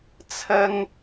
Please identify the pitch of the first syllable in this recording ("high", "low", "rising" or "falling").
high